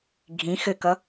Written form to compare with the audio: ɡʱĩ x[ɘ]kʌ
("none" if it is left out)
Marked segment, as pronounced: ɘ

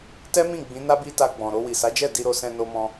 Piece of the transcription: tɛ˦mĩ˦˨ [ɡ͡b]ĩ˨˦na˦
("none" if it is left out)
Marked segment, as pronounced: ɡ͡b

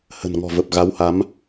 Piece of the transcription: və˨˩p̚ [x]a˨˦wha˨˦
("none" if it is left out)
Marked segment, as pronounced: ɣ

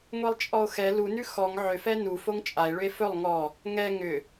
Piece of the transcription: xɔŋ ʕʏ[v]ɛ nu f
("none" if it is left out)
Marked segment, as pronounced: f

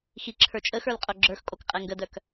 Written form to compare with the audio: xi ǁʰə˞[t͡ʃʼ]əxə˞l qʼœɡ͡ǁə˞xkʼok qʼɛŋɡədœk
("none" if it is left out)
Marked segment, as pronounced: t͡ʃʼ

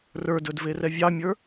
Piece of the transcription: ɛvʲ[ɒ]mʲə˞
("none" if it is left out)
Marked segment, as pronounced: ɑ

